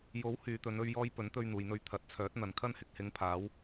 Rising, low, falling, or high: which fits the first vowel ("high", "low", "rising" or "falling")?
rising